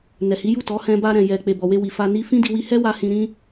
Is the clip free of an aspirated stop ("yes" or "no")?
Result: yes